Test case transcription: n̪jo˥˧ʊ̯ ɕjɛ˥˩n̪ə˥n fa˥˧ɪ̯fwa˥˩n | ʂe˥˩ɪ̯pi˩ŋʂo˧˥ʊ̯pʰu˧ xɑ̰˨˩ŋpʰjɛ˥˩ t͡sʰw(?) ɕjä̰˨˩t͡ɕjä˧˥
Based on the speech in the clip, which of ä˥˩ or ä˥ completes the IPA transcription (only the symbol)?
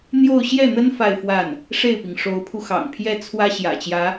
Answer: ä˥